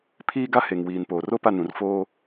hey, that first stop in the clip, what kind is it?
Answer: aspirated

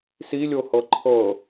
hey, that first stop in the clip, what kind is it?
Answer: click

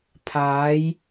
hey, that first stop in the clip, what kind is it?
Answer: aspirated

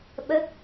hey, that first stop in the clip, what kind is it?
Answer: implosive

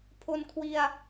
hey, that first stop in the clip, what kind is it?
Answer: aspirated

